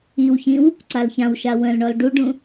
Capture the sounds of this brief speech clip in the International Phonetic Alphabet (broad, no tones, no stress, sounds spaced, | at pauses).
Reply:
i w ç ĩ w | ǀ a l ç ã w ʃ a w ə̃ l ɳ ɔ l ɖ u ɖ ũ